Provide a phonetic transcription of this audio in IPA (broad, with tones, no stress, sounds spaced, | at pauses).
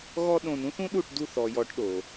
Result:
ɣ ɔ˦ ɗ õ˧ n ũ˦ θ ũ˦ ɗ u˦˨ ʈ d u˦˨ θ ɔ˨ j ɔ˨˦ ʈ ɗ o˨